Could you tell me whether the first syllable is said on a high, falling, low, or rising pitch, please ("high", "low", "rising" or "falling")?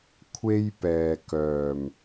high